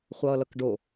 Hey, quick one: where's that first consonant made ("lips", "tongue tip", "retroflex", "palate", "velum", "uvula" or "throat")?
uvula